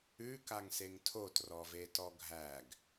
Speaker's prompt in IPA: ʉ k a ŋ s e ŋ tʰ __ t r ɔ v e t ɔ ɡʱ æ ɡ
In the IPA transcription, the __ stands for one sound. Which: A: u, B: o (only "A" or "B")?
B